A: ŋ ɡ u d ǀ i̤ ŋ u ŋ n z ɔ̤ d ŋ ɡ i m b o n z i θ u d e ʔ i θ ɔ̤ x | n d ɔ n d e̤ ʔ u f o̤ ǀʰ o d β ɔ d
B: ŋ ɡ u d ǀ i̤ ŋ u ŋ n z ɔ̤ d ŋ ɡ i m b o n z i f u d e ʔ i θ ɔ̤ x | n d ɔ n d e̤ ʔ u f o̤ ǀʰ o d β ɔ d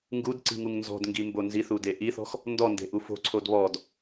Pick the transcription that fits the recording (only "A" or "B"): A